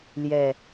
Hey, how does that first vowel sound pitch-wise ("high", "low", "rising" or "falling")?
low